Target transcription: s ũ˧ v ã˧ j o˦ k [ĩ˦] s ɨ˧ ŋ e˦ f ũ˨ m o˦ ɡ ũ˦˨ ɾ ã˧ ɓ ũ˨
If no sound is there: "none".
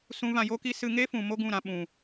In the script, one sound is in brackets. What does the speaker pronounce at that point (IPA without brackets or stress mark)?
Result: i˦